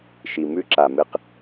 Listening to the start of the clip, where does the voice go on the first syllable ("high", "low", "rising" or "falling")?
low